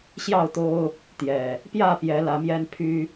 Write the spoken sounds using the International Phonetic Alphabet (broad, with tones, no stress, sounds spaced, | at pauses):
ɕ j ɑ˥˨ ʊ̯ t̪ o˦ ʊ̯ | t̪ j ɛ˨˩ | p j ä˥˨ p j ɛ˨˦ l ä˨˦ m j ɛ˦ n pʰ y˦